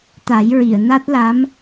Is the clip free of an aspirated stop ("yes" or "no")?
yes